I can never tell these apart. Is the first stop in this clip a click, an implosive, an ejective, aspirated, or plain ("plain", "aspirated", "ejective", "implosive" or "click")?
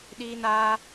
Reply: implosive